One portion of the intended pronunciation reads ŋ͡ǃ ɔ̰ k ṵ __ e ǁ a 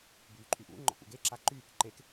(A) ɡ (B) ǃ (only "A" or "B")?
A